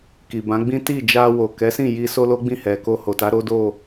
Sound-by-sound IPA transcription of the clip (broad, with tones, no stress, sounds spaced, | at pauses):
k i˨ b ã˨˦ ɡ͡b ĩ˦ t i˦˨ d͡ʒ a˧ w o˨ k ɛ˨˦ s ĩ˦˨ j i˧ s o˦ l o˦ ɡ͡b ĩ˦˨ h ɛ˨ k o˧ h o˨ t a˨˦ ɾ o˦ d o˦˨